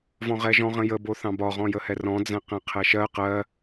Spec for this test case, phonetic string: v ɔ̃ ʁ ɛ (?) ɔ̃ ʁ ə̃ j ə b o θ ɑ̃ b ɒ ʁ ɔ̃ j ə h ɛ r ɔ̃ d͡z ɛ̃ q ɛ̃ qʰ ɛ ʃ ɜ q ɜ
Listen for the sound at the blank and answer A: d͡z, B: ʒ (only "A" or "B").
B